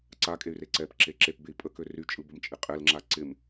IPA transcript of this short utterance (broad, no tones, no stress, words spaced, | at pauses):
ǀakʼey̯re ǀɛpǁe ǁepbei̯ pʼəkø ryt͡ʃʼɯbəmt͡ʃʼɪ qʼɛlŋ͡ǁa ǀɪm